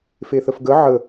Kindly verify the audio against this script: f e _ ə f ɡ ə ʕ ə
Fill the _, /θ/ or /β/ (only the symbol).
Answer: θ